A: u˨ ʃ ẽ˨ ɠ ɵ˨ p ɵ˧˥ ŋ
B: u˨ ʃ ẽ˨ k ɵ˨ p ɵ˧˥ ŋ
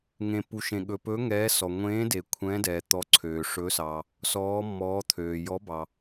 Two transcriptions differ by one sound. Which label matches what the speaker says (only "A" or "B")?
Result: A